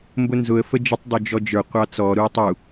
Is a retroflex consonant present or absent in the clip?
absent